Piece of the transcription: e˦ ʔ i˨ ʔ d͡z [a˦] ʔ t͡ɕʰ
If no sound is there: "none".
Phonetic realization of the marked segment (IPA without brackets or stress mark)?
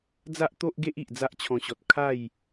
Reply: a˦